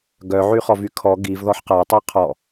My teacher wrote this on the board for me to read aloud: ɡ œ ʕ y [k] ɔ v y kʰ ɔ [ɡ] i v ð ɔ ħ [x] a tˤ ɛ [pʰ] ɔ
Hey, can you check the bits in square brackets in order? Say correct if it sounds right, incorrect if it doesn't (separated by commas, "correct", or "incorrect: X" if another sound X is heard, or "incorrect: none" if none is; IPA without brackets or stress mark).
incorrect: χ, correct, incorrect: q, incorrect: qʰ